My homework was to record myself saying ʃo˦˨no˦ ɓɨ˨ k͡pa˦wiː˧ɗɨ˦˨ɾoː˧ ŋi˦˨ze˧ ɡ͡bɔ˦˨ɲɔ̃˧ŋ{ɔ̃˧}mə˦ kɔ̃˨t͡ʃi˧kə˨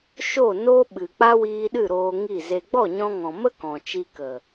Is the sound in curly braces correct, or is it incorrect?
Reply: incorrect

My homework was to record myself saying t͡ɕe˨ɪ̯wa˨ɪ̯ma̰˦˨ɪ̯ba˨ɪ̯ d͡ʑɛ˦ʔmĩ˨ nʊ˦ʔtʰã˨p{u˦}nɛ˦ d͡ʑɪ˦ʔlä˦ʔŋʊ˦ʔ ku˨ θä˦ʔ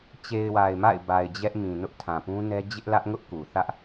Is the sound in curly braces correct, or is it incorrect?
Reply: incorrect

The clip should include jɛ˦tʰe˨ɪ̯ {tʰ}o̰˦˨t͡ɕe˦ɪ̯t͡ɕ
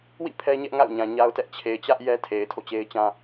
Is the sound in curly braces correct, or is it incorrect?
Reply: correct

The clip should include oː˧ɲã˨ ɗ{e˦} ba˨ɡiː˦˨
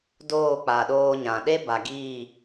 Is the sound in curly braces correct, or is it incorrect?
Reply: correct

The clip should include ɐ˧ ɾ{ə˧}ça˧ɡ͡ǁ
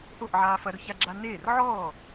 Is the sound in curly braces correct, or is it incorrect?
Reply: incorrect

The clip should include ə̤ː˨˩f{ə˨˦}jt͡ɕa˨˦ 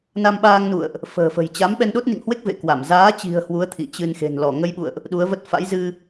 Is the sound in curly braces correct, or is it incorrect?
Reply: incorrect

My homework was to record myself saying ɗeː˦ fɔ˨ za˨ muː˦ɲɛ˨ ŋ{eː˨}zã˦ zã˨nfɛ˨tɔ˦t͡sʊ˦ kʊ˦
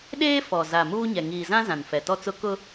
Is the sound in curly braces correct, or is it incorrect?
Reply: incorrect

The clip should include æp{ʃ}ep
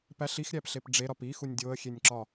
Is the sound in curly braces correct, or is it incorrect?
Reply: incorrect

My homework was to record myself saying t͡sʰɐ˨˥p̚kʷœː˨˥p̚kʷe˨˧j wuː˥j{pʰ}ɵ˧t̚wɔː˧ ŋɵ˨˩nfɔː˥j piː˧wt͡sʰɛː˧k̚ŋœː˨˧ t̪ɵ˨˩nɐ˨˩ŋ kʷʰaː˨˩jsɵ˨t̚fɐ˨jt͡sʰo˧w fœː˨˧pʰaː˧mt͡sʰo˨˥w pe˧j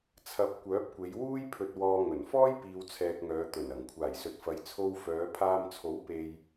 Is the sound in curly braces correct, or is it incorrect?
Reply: correct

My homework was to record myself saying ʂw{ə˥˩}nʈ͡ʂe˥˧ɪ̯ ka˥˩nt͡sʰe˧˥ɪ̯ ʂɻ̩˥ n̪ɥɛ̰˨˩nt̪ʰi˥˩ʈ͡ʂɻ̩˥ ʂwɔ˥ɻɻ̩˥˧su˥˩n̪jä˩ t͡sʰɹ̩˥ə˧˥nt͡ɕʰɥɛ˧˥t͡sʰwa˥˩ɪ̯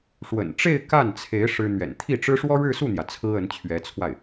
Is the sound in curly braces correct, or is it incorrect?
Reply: incorrect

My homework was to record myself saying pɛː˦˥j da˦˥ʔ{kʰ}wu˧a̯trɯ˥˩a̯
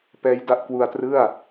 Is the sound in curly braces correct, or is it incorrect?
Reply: incorrect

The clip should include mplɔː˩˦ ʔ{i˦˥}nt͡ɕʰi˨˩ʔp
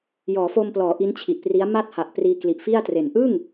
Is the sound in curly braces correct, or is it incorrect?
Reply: correct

